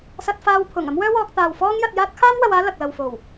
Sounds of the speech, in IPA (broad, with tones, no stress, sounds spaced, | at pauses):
s ɐ˧ t̚ f aː˧ w pʰ ʊ˨˩ ŋ ɐ˥ m w œː˥ w ɔː˧ k̚ t̪ aː˨ w f ɔː˥ ŋ j ɐ˧ t̚ j aː˥ t̚ kʰ aː˥ m w ɐ˧ w aː˥ l ɐ˨ k̚ l ɐ˨ w f o˨˩ w